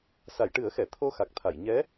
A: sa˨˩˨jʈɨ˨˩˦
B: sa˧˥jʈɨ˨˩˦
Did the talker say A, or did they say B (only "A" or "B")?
A